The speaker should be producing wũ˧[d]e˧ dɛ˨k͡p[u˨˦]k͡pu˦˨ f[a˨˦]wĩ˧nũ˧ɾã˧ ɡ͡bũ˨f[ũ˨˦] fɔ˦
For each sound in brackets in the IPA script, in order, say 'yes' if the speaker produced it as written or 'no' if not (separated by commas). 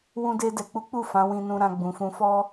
yes, yes, no, no